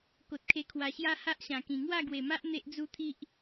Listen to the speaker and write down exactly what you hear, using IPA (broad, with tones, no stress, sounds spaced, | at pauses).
k o˨ t̚ kʰ e˧ kʰ w a˨˩ ɕ j a˦ h a˦ ʔ ɕ ã˨˩ k ĩ˨˩ ŋ w a˥˧ ɡ w e˨˩ m a˦ ʔ n̪ e˦ ʔ d͡z u˦ t̪ʰ i˦ ʔ